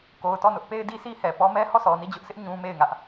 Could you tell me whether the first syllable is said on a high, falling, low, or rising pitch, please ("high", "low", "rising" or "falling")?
low